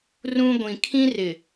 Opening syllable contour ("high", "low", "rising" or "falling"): high